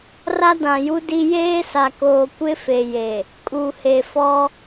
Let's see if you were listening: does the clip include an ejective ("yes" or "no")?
yes